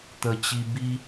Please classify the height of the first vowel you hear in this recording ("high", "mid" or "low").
mid